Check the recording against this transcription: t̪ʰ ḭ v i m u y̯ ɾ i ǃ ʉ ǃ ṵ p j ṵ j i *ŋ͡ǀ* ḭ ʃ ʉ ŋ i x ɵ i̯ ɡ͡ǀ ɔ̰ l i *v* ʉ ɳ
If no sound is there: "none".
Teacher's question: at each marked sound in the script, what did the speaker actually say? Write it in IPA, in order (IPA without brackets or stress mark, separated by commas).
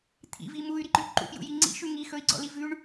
ŋ͡ǀ, v